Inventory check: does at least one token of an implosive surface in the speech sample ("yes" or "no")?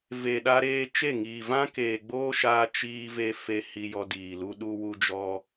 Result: yes